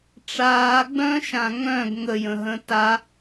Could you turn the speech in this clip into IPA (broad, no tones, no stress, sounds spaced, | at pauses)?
ʈ͡ʂ aː ɡ͡b œ̃ː ʃ ã ŋ œ̃ ɡ ŋ ə j ə̃ ɦ ə̃ː t a